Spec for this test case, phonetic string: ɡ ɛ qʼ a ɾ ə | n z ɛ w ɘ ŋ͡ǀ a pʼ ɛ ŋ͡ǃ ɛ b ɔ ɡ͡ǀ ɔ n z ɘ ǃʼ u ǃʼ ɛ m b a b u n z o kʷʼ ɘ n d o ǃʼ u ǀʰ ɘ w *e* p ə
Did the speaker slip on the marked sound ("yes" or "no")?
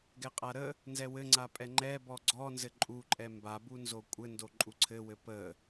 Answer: yes